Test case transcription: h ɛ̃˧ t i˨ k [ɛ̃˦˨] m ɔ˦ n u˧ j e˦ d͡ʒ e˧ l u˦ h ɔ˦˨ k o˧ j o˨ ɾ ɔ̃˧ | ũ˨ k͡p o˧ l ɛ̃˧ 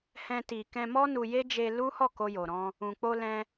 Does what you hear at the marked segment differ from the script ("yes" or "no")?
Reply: yes